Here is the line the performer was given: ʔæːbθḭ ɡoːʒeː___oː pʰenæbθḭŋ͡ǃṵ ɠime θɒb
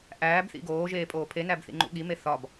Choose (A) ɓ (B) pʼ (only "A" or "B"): B